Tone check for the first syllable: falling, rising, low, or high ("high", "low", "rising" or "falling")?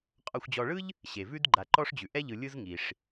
low